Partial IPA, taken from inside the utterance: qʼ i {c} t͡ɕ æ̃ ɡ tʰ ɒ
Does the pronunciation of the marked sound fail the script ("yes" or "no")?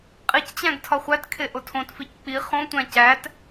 no